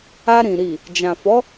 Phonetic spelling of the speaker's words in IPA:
a˧ ɾ ĩ˨ ɾ i˨ | d͡ʒ ã˨ f ɔ˨˦

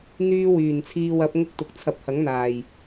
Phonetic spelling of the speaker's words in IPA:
n̪ yː˥ w yː˨˩ n t͡sʰ iː˧ w ɐ˨˥ p̚ ŋ ʊ˥ k̚ t̪ ʊ˨ k̚ t͡sʰ ɐ˨ p̚ h ɐ˨˥ ŋ n̪ aː˨˩ j

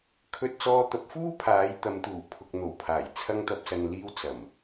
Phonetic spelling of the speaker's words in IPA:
kʰ ɵ˧ t̚ t͡s ɔː˧ t̪ ɐ˨˥ p̚ f uː˥ pʰ aː˨˥ j t̪ ɐ˨˧ m t̪ uː˨˩ pʰ ʊ˨ k̚ n̪ o˨˩ w pʰ aː˨˩ j t͡sʰ ɐ˧ ŋ t̪ ɐ˨ p̚ s ɐ˨ n l iː˧ w t͡s ɐ˨˩ m

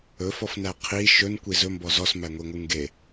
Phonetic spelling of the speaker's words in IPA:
ɵ f ɔ f n æ qʰ i ʃ ɵ n kʷ i z ɵ m b ɔ z ɔ s m æ ŋʷ i ŋʷ ɨ ŋ ɡ e

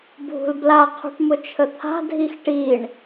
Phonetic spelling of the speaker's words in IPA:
bʱ ṳ l b l a qʰ ṳ ʈ m ʊ t͡ʃʰ ə t̪ʰ a̤ dʱ i x ʈ i ɳ

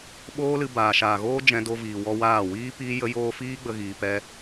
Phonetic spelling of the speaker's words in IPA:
ɓ oː˦ l ɨ˧ b aː˨ ʃ aː˨ ɣ oː˦ d͡ʒ ɛ̃˧ d o˧ v iː˨ w ɔ˧ w aː˦˨ w iː˦ p iː˦ j ə˧ j oː˧ f iː˦ ɡ͡b ə˧ ɣ iː˧ p ɛ˦

